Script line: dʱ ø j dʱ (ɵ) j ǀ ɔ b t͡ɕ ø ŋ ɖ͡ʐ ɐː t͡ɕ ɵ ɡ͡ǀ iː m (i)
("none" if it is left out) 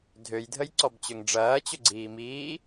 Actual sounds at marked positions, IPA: ə, iː

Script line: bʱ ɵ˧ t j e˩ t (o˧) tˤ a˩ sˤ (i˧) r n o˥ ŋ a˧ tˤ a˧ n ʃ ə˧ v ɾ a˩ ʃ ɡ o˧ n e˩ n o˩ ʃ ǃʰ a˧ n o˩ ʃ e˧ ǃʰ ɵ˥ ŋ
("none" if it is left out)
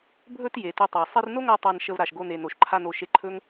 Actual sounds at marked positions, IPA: ɵ˧, i˧

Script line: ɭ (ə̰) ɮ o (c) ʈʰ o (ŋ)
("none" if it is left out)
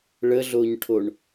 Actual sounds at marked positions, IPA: ə, ɲ, ɳ

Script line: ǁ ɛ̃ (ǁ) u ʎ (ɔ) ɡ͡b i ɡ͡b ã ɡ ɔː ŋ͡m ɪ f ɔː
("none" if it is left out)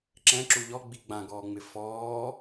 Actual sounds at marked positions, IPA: ǁ, ɔ

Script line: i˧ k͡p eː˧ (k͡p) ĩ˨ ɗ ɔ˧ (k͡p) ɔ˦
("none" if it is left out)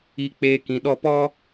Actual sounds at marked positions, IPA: k, p

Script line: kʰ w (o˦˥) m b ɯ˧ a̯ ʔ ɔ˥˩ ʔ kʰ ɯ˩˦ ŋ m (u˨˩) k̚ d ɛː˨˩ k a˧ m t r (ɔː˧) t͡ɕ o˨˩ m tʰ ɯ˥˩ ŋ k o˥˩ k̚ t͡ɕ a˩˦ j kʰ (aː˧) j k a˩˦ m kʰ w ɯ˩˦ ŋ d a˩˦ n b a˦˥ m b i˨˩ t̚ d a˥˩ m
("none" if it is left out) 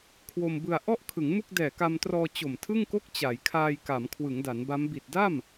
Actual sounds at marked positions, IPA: o˧, u˥˩, ɔː˧, aː˧

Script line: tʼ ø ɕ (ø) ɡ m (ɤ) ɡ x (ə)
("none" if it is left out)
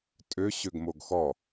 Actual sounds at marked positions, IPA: ø, o, ɔ

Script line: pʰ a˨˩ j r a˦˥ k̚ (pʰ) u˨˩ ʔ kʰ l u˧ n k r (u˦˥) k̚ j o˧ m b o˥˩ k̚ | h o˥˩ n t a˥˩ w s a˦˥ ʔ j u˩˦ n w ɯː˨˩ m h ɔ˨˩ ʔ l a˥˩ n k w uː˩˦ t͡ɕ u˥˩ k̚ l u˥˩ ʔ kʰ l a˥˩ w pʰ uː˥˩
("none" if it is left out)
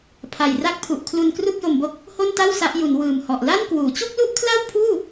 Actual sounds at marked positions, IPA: pʰ, u˥˩

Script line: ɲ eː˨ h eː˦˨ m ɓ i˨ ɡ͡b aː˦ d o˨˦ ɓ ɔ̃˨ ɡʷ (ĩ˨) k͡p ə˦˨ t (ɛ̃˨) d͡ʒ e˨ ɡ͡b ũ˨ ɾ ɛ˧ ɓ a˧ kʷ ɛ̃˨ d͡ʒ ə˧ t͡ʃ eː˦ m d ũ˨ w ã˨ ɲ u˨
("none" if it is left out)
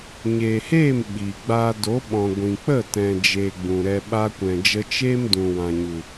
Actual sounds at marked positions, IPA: ĩ˨, ɛ̃˨

